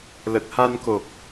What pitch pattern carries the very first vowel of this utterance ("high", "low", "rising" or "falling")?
low